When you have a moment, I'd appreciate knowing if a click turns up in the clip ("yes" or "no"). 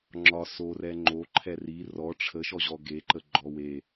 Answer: yes